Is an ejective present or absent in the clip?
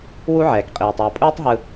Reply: present